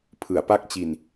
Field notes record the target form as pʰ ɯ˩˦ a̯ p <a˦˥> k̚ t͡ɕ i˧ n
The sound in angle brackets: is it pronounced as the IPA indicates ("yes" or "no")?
yes